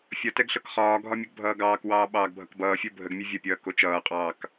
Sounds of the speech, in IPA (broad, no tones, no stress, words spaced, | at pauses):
fʲʌtɛɡ ɬɤkχɒːɡʱɒ mʲəɡbʱʌːɡɑːkwɑː ɓɑːɡbʱʌkbʌːfʲo bʱəɡmʲɛ vʲʌpʲʌː kot͡ʃʌːqʼɑːk